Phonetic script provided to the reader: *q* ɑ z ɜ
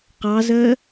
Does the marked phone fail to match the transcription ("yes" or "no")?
no